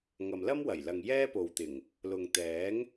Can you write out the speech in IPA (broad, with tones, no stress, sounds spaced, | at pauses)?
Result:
ŋ ɐ˨ m l ɐ˥ m w ɐ˨˩ j l ɐ˨ ŋ j ɛː˥ p o˨ w t̪ ɪ˨˩ ŋ | l ʊ˨ ŋ t̪ ɛː˨˥ ŋ